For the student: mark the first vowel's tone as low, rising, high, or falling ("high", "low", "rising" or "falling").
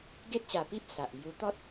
high